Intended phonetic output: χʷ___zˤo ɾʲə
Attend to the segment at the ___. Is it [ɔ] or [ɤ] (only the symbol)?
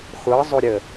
ɤ